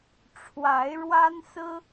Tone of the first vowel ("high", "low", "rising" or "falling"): rising